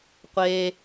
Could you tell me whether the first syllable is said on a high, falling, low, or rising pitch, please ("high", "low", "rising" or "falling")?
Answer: high